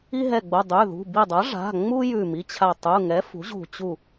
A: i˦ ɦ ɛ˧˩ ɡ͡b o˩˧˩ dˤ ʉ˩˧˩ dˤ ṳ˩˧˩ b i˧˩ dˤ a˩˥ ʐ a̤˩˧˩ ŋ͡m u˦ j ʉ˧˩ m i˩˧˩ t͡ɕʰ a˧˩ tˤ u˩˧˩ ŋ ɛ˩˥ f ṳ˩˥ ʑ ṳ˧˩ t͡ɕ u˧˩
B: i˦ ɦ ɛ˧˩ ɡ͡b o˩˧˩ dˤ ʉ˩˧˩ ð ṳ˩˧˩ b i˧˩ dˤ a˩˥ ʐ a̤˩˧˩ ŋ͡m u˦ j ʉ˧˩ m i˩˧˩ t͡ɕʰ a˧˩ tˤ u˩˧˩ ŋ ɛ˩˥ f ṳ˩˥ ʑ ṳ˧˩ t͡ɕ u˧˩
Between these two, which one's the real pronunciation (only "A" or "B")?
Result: B